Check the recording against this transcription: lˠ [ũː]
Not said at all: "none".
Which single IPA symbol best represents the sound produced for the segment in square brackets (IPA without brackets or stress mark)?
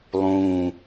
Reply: ũː